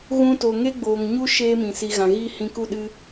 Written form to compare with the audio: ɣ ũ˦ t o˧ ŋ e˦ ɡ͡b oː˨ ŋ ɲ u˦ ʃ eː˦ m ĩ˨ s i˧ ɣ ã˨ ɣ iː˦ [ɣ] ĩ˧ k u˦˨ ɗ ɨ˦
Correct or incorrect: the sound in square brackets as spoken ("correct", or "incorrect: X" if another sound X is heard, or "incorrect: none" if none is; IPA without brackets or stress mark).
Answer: incorrect: h